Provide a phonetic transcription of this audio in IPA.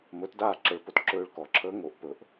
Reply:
m ɵ˨˥ t d aː˥˩ ǁ ɘ˨˥ ɭ p o˨ t ǁ øː˦˥ ɭ k ɔ˨˩˦ ǁʰ əː˦˥ ŋ o˨˩˦ ʔ p ɵ˨˩˦ ʔ

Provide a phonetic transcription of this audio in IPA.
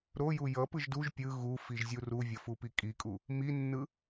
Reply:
ɾ o j u j ʌ p ɯ ʒ d u ʒ pʲ ɯ ɣ u f i ʒ zʲ u r u vʲ ə f u p i kʼ i kʼ u | m i nː ɯ

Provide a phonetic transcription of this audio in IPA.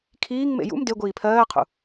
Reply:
kʰ iː ŋ m ḛ j ṵ m d e ɡʷ iː pʰ ɜː qʰ ṵ

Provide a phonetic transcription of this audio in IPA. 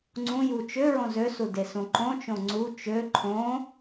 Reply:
ŋ͡ǀ ũ j u t͡ʃ ø ɹ õ z ø s u d e s ũ ǃ õ t͡ʃ õ ŋ͡ǀ u t͡ʃ ø ǃʰ õ

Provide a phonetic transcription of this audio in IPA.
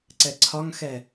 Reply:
ǀ ɛ ǀʰ ɒ ŋ x ɛ

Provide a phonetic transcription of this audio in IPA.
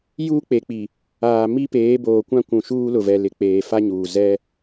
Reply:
j uː˦ k͡p e˨ k͡p i˨ | aː˨ m i˦ p eː˨˦ b oː˨ kʷ ã˦ kʷ ũ˨ ʃ uː˦ l ʊ˨ v ɛ˨ l ɪ˨ k͡p eː˨ f a˦ ɲ uː˨ z ɛ˦

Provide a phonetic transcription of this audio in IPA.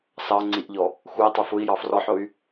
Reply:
s ɑ ŋ͡ǀ i ʔ ʎ ɔ | x u i̯ tˤ i f ʊ i̯ j ɑ f r ɔ ħ ʊ y̯

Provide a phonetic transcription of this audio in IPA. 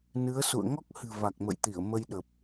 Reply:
n ɨ˨˦ ə̯ s ṵ˧˨ ə̯ ŋ ɔ˦˥ k̚ h ɨ̤˨˩ v a˨˩ k̚ m ə̰˧˨ j t̪ i˧˩ ə̯ m ə˧ j ɗ ə˨˩ p̚

